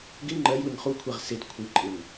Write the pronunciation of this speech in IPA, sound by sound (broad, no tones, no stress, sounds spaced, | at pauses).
ɡ ɪ ŋ͡ǃ ɜ j w ɪ ŋ χ u kʷʰ ɛ ʁ s ɪ d kʷʰ ɨ ǃʼ ɪ ŋ